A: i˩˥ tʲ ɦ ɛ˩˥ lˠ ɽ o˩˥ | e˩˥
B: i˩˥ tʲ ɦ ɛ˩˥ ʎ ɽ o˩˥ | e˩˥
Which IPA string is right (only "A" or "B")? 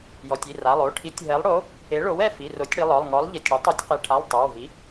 A